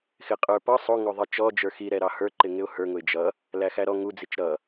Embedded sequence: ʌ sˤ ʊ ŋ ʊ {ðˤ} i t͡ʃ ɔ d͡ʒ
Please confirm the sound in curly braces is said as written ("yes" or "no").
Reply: yes